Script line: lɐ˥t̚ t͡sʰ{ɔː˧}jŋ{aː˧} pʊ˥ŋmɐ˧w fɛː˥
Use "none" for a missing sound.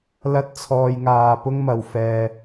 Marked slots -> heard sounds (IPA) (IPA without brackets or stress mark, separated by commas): ɔː˧, aː˧